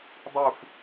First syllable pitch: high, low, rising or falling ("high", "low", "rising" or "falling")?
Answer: falling